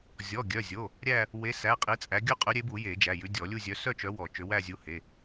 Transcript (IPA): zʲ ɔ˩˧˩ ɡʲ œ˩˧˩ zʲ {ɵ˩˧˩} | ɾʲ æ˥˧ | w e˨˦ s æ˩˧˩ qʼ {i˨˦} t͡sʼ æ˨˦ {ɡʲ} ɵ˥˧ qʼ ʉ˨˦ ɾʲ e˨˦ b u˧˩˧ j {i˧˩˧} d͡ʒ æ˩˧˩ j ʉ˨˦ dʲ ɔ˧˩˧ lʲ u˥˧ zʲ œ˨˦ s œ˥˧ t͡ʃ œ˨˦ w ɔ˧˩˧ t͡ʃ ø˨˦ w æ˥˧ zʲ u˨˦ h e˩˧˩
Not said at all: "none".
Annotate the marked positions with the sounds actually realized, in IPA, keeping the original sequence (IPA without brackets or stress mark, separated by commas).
o˩˧˩, i˨˦, ɡʲ, e˧˩˧